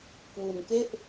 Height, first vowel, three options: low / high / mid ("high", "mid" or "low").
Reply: high